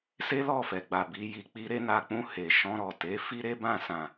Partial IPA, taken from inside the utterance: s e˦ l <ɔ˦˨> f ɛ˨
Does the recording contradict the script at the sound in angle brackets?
no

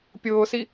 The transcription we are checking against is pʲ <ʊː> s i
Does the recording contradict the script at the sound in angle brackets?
no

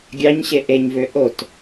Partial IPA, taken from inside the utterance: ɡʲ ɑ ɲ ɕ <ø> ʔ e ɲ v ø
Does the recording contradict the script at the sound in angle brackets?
yes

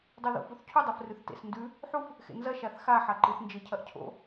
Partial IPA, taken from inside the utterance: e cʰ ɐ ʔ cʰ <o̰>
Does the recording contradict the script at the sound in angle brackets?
no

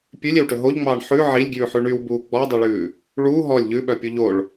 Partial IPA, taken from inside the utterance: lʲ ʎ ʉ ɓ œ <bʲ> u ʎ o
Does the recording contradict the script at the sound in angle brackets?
yes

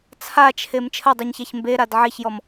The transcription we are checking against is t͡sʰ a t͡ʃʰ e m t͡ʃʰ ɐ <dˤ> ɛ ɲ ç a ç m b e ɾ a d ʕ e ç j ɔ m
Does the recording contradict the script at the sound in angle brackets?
no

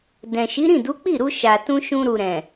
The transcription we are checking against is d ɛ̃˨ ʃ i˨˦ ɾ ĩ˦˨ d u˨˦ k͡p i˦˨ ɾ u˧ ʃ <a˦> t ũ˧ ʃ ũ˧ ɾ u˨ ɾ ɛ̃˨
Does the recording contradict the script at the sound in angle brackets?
yes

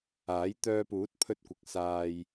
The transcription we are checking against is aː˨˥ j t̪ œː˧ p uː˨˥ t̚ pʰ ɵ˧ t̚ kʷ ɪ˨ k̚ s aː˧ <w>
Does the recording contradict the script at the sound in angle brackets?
yes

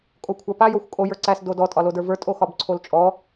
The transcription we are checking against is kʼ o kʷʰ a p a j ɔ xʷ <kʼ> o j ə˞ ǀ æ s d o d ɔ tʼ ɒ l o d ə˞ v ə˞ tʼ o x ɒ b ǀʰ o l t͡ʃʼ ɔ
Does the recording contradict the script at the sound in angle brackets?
no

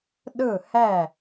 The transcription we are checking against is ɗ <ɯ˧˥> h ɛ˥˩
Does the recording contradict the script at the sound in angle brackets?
yes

